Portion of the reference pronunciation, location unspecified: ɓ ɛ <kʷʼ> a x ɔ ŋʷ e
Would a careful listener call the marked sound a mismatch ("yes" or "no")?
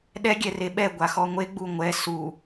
yes